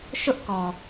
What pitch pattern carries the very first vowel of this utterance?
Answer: high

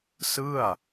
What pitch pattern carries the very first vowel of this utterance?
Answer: falling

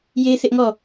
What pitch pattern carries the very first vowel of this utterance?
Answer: high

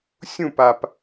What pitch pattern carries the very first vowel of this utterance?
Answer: falling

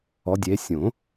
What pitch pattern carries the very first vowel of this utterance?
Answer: rising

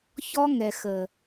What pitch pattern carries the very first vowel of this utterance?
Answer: high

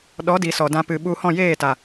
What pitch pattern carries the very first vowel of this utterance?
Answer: rising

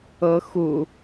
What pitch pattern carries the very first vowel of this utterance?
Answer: rising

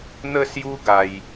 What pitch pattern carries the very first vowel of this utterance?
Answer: falling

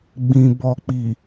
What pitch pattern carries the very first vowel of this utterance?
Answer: low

